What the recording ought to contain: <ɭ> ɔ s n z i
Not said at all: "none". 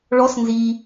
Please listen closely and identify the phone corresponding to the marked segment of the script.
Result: ɭ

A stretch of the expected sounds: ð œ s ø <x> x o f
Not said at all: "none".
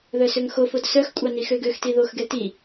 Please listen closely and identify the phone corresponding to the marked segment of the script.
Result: ŋ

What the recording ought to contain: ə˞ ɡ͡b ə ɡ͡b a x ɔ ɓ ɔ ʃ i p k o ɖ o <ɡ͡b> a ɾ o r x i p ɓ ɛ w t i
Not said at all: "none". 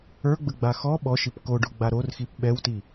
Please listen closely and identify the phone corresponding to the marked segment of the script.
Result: ɡ͡b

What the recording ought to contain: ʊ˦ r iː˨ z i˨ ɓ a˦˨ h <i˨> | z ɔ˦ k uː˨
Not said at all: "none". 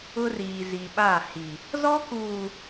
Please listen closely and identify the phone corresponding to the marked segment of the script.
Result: i˨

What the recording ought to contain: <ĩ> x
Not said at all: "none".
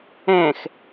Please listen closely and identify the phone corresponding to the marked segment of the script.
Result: ẽ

